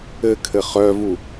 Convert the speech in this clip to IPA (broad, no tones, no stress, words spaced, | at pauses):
ɘkʰɘ χœvu